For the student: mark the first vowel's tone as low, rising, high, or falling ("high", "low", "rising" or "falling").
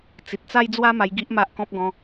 low